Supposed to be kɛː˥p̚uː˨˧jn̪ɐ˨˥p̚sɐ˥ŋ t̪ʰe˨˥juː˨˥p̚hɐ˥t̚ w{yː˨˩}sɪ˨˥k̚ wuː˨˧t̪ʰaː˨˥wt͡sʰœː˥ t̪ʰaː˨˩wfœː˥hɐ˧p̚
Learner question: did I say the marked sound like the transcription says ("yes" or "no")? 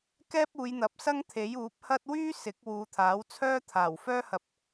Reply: no